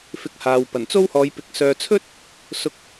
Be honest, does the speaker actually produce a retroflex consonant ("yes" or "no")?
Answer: no